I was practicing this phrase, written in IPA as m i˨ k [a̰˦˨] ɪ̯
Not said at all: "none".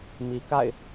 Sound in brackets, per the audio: a̰˦˨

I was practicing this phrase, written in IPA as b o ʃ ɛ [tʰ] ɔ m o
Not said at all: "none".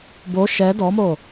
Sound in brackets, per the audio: d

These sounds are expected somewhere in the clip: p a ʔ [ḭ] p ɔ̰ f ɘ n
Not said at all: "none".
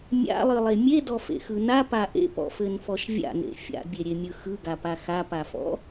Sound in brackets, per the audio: ḛ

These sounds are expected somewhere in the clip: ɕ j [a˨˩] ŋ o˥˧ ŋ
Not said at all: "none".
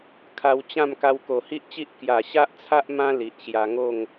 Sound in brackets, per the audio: a˧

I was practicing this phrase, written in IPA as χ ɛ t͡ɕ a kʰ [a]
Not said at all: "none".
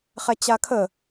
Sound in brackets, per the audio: ə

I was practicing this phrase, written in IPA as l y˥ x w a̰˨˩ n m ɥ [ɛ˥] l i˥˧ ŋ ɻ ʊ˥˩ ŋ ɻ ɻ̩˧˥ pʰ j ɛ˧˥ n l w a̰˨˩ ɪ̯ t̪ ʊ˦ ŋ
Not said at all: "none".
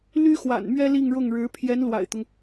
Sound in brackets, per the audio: ɛ˥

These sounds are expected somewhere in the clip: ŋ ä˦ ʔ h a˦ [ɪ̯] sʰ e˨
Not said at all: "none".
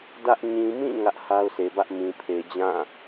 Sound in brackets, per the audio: ʊ̯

